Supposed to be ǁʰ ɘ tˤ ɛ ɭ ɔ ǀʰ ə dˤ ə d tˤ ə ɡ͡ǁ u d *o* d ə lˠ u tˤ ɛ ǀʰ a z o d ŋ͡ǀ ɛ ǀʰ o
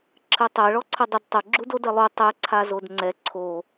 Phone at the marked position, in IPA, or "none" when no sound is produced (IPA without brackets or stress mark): o